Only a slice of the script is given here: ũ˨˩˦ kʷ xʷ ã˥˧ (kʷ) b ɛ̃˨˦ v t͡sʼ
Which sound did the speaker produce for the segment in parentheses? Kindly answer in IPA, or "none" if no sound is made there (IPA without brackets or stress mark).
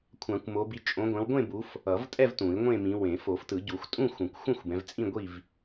xʷ